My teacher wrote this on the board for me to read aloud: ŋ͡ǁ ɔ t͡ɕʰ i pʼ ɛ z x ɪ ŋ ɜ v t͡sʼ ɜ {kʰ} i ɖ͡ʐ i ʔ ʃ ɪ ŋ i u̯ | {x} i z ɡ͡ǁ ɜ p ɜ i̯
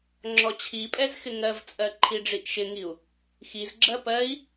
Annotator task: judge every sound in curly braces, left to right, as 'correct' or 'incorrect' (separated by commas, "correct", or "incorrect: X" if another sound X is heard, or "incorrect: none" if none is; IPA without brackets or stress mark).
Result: incorrect: ǃʰ, correct